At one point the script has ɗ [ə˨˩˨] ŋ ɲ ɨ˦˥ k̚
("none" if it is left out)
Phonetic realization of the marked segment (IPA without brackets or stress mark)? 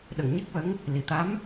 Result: ə˨˩˨